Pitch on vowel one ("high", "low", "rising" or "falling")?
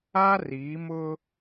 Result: high